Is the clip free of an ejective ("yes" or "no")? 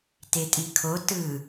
no